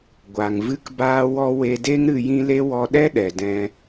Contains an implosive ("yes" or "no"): yes